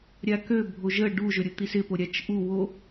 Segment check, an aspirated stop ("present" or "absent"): absent